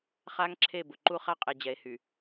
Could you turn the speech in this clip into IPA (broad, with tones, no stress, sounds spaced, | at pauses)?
χ a˦ ŋ ǁʰ e˦˨ b ʊ˨ ǃ u˦ χ a˦ qʼ e˨ d͡ʑ ɛ˨˦ e̯ h y˨